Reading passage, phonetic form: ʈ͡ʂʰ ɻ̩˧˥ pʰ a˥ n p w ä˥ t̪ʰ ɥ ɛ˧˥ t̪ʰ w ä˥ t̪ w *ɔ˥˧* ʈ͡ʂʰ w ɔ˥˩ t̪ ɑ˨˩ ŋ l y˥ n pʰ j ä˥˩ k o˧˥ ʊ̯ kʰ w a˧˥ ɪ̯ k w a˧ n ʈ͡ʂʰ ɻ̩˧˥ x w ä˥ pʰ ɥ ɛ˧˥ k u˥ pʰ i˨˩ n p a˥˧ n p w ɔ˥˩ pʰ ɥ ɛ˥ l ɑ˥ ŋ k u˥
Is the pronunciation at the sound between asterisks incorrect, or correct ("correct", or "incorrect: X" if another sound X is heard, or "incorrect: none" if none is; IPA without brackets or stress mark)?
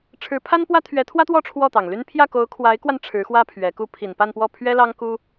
correct